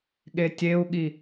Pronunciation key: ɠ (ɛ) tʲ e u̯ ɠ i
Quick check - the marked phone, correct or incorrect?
incorrect